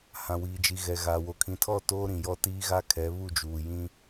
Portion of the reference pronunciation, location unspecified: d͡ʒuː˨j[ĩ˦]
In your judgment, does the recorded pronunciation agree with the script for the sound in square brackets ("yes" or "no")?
yes